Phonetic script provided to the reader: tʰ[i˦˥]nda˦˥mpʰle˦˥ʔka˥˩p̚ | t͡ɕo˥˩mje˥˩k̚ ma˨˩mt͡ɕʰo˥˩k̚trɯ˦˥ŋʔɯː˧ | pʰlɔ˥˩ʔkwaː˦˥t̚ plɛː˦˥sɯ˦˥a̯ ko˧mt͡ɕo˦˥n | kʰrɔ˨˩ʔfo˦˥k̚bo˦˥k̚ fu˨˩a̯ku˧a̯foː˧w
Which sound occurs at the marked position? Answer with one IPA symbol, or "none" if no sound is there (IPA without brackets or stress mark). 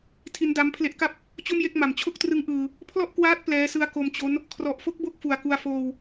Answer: i˦˥